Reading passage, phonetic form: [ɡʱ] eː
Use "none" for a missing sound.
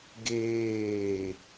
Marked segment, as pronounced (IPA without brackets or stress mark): ɡ